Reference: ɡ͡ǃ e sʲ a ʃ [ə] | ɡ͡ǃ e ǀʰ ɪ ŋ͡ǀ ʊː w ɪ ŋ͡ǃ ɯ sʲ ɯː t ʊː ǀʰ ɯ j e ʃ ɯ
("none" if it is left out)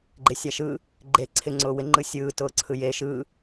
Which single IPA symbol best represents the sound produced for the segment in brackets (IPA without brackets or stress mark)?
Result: ɯ